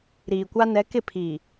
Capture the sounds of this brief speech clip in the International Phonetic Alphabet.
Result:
ɾ iː˨ kʷ a˦ n ɛ˨˦ k ɪ˦˨ pʰ iː˨

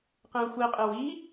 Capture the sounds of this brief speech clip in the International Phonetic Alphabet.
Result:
q ẽ ʊ̯ xʷ i qʼ e w i

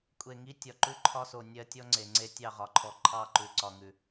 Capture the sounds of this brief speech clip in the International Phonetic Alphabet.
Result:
kʷʼ e˨ ŋ i˦ tʲ ɒ˨ ǃ ʉ˦ ǃʰ ɒ˦ s o˨ nʲ ɜ˦ tʲ ɔ˦ ŋ͡ǀ e˨ ŋ͡ǀ e˦ tʲ ɑ˦˨ ʁ ɒ˨ ǃʰ ɔ˨ ǃʰ ɑ˦˨ ǃ ʉ˨ ǀ ɒ˨ ŋ ʉ˨

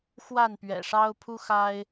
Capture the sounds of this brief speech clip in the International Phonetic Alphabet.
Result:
x w a˥˨ n p ɥ ɛ̰˨˩ ʂ ɑ˦ ʊ̯ pʰ u˦ x a˦ ɪ̯

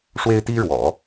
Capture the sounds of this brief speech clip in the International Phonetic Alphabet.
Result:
ʂ w e˥ ɪ̯ t̪ i˥ ɻ w ɔ̰˨˩˦

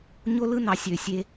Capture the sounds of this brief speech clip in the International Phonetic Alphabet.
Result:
ɲ o˥ l ɯ˥ n ɑ˩˧ sʲ ø˩ sʲ e˧

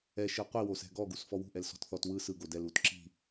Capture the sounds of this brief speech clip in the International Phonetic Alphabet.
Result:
ɛ ʃ ɯ qʷ i w o s ɛ̤ ɡ ɔ ɡ u s f ɔ w ṳ ʔ ɛ l s ɔ̤ t θ ɔ t w ɯ s ɯ ɡ o d ɛ l u t ǁ i̤

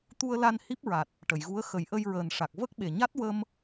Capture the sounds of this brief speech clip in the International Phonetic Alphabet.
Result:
t̪ u˧ ə̯ l a˧ n h i˦˥ p̚ ɹ a˨˩ t̚ | ʈ ə˨˩˨ j ɣ u˧˥ ə̯ x ə˨˩˦ j ʔ ə˧ j ɹ əː˨˩ n ʂ a˨˩ k̚ v ə˦˥ k̚ ɓ e˨˩ ɲ a˦˥ t̚ w ə˧ m

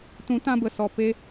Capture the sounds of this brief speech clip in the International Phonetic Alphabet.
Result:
t ũ˨˦ t ã˧ b ə˨ s ɔ˨ p e˧

